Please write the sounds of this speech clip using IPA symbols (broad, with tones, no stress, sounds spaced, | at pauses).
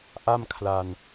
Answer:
ʔ a˥˩ m kʰ l a˧ n